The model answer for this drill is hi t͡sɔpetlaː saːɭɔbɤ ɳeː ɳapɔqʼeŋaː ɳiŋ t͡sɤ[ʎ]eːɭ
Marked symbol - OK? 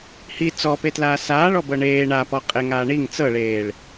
no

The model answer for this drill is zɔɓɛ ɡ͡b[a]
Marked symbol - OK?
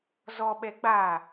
yes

